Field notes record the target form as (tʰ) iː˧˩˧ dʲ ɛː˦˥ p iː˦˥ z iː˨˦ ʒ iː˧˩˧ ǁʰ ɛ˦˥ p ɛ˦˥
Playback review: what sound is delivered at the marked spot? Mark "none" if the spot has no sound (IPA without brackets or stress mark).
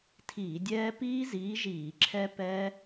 tʰ